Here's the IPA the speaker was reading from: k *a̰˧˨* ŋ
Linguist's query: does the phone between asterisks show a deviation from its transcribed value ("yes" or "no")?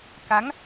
yes